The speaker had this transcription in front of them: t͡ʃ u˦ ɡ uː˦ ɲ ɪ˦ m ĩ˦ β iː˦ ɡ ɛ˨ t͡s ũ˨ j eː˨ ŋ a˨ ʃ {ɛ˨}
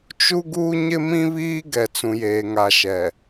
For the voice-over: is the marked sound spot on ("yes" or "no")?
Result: yes